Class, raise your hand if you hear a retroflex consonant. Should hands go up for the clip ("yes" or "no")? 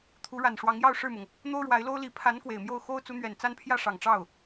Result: yes